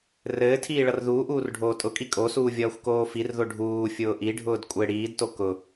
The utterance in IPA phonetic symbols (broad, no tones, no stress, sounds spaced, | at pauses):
r ɘː tʰ iː ɭ ʌ r ð uː ʔ uː r ɖʱ oː tʼ ʊ kʼ i kʼ o s uː vʲ ʌː xʷ k oː f i r ð o ɖʱ uː fʲ ʊː ʔ i ɖʱ ʊː d kʷʼ ɘ ɽ iː d t o k ʊ